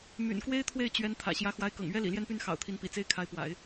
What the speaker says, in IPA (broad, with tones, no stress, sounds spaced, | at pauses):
m y̰˨˩ n k w e˥ ɪ̯ t̪ʰ w e˥˩ ɪ̯ t͡ɕ ɥ ɛ˧˥ n t̪ʰ ä̰˨˩ ɕ j ä˧˥ x w a˧˥ ɪ̯ k ɤ̰˨˩ ŋ ɥ ɛ˥ l ḭ˨˩ l j ɛ˥˧ n p y˥˩ n x ɑ̰˨˩ ʊ̯ t̪ʰ i˧˥ n p ḭ˨˩ t͡s e˥ ɪ̯ kʰ a˧˥ ɪ̯ p w a̰˨˩˦ ɪ̯